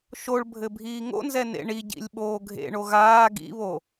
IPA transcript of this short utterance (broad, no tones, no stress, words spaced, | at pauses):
ʃoɭbʱɘ bʱiːŋo̰nzɛ nḛɳiɟḭlʲ ɓoːɡʱḛɳo ɣaː ɡḭβo